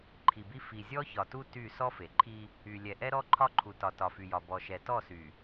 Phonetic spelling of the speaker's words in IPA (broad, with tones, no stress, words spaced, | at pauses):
ǃʰi˨bi˦ fi˨ zʲɔ˦çɒ˨tu˦ ty˦˨ sɔ˦fe˨ǃʰi˦ | y˨ lʲɛ˨ ʔɛ˦ɾɔ˦ ǃʰɒ˦ǃʰu˨tɒ˨ tɒ˨fy˨jɒ˨ bɔ˨ʃɛ˨tɔ˦˨sy˨